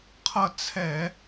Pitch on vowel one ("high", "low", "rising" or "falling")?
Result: falling